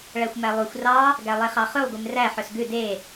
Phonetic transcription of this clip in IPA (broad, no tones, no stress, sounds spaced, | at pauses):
ɭ æ xʷ m æ lˠ u xʷ r ɑ | ɡ æ lˠ e χ ɑ χ ʉ lˠ ɡʷ i m r æ ħ œ s ɡ ʉ d e